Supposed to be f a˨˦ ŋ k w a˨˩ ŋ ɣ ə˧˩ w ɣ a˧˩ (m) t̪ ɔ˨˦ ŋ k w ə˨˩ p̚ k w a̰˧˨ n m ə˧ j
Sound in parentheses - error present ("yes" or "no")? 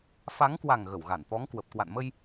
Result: yes